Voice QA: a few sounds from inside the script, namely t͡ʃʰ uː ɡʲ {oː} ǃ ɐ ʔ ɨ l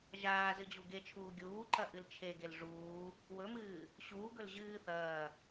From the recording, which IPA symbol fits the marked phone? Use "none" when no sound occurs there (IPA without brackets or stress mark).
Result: uː